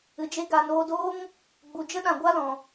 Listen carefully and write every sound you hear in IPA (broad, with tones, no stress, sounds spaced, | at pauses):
ɨ˨ d͡ʒ e˦ ɡ a˨ n oː˧ d oː˦ ŋ | ɡ͡b u˨ d͡ʒ ə˦ ɗ ã˨ ɡʷ a˦ l ɔ̃˨